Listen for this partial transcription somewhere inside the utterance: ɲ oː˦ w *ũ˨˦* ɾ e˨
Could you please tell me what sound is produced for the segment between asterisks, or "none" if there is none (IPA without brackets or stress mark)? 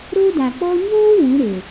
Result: ũ˨˦